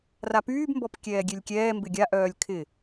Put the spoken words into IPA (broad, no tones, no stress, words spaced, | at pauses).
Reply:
rapyːbmbɔp kʲɛːɡʲelʲkʲɛː mbɪɡʲaʔœːlʲ kʰɪ